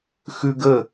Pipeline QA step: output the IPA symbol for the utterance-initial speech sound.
x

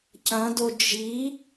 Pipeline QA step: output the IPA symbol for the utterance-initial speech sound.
c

